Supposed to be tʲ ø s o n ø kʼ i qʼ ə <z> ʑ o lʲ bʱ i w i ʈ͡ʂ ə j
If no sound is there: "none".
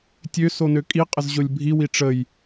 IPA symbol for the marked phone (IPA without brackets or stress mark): z